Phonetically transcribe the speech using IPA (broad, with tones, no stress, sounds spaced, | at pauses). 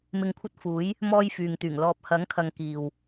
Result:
m ɪ˨ ŋ kʷʰ ɐ˧ t̚ f uː˨˥ j | m ɔː˧ j f yː˨ ŋ t̪ yː˨˩ ŋ l ɔː˨ p̚ h ɐ˨˥ ŋ kʰ ɐ˨ ŋ k iː˨ w